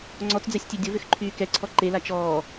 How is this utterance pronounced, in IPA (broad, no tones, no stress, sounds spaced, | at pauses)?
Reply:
ŋ͡ǀ ɔ t͡s d͡z ɛ sʲ tʲ e dʲ o v ʏ x ǃʰ yː k ɛ ǀʰ ɔ ǃ e l a t͡ʃ ɔː